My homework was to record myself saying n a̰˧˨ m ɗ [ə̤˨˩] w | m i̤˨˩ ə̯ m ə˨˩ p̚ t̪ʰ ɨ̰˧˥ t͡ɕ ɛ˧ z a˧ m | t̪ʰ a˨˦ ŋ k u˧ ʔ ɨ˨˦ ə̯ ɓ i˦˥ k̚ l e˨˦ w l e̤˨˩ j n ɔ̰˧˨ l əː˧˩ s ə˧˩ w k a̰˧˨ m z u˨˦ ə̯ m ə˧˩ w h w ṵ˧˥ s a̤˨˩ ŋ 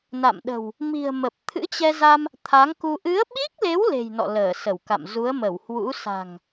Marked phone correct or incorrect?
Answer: correct